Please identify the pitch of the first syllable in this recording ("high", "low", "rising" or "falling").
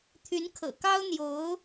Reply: rising